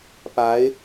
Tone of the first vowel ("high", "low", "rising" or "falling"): rising